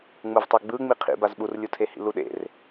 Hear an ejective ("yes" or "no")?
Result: no